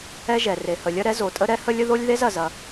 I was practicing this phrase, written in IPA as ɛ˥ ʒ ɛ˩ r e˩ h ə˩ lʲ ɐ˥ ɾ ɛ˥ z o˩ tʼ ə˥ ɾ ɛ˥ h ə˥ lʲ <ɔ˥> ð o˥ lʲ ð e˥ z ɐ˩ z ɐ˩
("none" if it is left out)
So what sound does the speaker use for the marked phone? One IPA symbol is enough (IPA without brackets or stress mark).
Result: ə˥